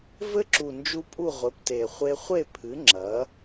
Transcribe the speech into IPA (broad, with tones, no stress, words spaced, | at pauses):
vɘ˦˥ǁu˨˩nd͡ʒu˧ pʼu˥˨ʁʷɘ˩˥pte˨˩ χʷe˧χʷe˥˨pʰɨ˩˥ ŋ͡ǁɐ˩˥